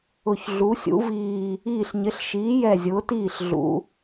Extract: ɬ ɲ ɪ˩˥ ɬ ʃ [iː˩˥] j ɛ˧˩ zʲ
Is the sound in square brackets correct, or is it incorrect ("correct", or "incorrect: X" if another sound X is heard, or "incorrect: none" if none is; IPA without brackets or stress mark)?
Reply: correct